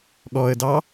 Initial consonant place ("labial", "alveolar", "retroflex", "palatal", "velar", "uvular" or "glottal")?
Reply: velar